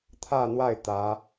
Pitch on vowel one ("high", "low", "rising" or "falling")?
falling